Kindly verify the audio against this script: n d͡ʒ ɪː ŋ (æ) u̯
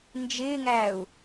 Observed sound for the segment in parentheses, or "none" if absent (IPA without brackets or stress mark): æ